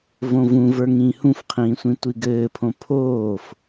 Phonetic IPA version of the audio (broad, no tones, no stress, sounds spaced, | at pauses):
v õ v ũ v ə˞ ŋ ĩː h ũ f qʰ ĩː sʷ ĩ tʷ i ɡ ɘː pʰ õ pʰ oː f